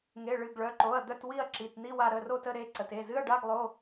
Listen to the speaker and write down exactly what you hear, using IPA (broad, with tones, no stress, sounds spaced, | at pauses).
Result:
ŋ e˩˧˩ ɭ ɨ˩˧˩ ɡ ɭ œ˩˧˩ ǃ o˩˧˩ ɐ̯ d̪ œ˦˨ t w i˦˨ ɐ̯ ǁ i˩˧˩ t n̪ i˧˥˧ w a˦˨ ɾ ə˩˧˩ r o˦˨ t ə˦˨ ɾ e˦˨ ǀ ə˩˧˩ t e˩˧˩ z ɨ˧˥˧ ɐ̯ ɖ a˧˥˧ ɡ lˠ o˧˥˧